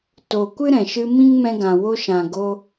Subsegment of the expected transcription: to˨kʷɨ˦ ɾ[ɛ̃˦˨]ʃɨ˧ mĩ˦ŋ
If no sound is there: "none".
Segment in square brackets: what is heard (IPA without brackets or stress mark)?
ɛ̃˨